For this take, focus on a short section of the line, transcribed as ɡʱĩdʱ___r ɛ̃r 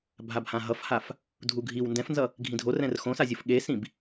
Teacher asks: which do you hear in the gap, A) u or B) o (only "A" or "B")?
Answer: B